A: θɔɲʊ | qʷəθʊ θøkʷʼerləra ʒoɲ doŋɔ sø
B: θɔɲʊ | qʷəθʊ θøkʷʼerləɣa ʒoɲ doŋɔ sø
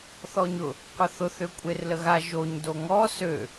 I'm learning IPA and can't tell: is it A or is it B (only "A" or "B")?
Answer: B